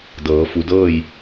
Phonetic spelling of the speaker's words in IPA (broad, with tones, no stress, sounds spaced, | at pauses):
d ɤː˩˧ f u˩˧ d ɤː˥˨ j